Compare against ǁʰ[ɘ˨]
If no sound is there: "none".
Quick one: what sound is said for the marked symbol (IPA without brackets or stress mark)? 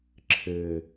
ɘ˨